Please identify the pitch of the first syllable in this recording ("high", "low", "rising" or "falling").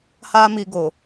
high